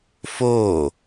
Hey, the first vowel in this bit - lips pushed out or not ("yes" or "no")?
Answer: yes